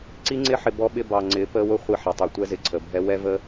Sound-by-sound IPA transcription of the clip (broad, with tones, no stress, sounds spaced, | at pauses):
ǀ i˦ ŋ͡ǀ ɪ˦ ħ ɪ˨ b ɔ˦ ɓ ɪ˦ b ɑ˨ ŋ͡ǀ ɪː˨˦ p əː˦ w ʊ˦ χʷ i˦˨ ħ ɛ˨ tˤ ɛ˨ tʷ ɛ˦ z ɪ˨ ǀʰ ə˨ bʱ ɛ˦ w ɛ˦ v əː˦